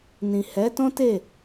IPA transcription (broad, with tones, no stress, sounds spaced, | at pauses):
n ĩ˨ h ɛ˨˦ t ɔ̃˦ t e˦˨